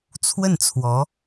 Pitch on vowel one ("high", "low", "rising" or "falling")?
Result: falling